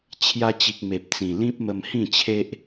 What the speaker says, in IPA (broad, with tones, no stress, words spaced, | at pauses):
t͡ɕʰja˧t͡ɕi˨k̚ me˨p̚t͡sĩ˨˩lĩ˦p̚ mə˧mhĩ˥˧t͡ɕʰe˦ʔ